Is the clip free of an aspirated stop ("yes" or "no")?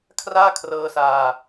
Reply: no